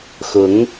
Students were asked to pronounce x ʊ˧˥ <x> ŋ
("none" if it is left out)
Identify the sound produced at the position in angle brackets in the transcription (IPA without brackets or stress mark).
none